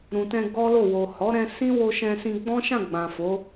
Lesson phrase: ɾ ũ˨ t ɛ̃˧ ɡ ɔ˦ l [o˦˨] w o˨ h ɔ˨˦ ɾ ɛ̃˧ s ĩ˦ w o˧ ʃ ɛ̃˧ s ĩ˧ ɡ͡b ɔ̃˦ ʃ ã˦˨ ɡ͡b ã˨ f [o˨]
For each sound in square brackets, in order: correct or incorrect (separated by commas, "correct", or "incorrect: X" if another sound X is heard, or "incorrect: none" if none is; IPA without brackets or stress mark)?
correct, incorrect: o˨˦